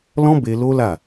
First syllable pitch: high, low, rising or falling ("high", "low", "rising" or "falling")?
high